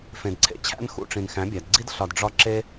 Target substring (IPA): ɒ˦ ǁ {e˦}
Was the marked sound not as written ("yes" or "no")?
no